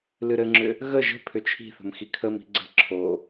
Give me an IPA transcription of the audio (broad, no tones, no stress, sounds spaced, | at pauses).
l ɨ ɾ ɘ ŋ͡ǁ ʏ | ɣ ə ʒ ə̤ pʰ ʏ t͡ʃʰ i̤ θ ə̤ m x i kʰ ə m i̤ ɡ͡ǀ ə̤ ǁʰ o